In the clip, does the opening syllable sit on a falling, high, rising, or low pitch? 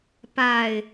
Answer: low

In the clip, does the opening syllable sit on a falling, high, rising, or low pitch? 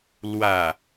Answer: low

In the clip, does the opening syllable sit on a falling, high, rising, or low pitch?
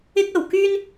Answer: high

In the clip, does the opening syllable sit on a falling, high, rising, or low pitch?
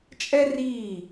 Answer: high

